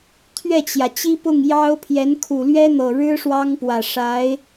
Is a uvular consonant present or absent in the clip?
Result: absent